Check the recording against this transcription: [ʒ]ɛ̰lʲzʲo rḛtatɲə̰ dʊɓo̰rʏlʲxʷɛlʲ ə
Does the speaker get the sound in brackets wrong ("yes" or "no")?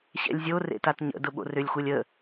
yes